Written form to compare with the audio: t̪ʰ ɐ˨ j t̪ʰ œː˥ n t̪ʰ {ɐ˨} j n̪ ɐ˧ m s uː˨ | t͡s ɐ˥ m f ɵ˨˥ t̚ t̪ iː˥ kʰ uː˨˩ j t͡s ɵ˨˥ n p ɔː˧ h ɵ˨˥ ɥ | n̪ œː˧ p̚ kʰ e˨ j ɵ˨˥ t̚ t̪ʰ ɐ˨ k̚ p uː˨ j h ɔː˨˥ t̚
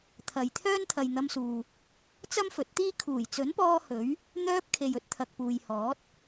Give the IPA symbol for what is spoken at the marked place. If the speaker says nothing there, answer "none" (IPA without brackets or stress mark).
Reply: ɐ˨